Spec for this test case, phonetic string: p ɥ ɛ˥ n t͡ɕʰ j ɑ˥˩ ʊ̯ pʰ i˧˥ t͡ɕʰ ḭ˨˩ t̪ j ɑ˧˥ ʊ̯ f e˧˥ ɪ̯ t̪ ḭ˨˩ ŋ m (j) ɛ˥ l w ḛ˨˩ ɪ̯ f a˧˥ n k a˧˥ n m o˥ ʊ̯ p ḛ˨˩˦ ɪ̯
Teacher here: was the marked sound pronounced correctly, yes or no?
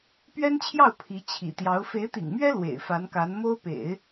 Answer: no